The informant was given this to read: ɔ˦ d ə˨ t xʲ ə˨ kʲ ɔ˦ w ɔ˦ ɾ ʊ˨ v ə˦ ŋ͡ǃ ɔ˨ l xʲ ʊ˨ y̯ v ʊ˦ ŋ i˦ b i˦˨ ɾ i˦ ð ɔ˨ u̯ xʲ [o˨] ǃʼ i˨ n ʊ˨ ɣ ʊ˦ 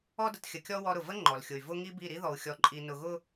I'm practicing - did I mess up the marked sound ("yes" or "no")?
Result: yes